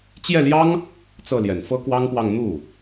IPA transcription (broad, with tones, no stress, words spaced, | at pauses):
t͡ɕjɛ˥˩ljɑ˥ŋ | t͡sɤ˥˩ljɛ˨˩n fɤ˥kwɑ˥ŋpwɑ˥˧ŋ n̪u˥˩